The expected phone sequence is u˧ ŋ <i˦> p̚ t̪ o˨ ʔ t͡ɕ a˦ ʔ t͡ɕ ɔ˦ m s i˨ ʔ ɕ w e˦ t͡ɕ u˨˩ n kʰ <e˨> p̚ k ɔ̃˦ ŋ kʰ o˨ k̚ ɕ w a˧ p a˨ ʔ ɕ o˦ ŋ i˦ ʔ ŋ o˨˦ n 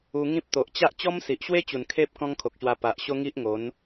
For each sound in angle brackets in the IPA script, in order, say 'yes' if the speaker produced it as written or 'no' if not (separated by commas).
no, no